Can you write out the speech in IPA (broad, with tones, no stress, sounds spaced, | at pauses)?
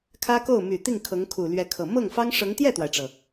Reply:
kʰ ä˥ k o˥˩ ʊ̯ m y˨˩ t̪ i˥˩ ŋ kʰ ɤ˧˥ ŋ kʰ u˨˩ l ɥ ɛ˧˥ kʰ ɤ˨˩ m ɤ˥˩ ŋ f ɑ˥ ŋ ʂ ɤ˧˥ ŋ t̪ j ɛ˥˩ t̪ w a˩ ɪ̯ ʈ͡ʂ ɤ˩